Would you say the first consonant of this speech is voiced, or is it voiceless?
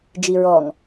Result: voiced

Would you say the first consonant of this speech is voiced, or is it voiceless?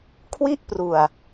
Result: voiceless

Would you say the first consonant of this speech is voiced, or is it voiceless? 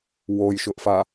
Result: voiced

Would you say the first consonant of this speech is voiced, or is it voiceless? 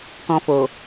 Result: voiceless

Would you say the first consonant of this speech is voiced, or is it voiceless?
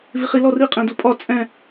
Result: voiced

